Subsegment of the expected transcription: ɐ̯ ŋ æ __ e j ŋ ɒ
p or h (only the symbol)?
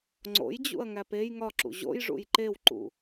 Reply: p